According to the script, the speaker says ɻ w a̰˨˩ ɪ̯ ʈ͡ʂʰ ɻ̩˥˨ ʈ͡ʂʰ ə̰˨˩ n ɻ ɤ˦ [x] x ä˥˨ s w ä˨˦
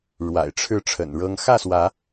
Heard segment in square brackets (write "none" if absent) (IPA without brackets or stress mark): ŋ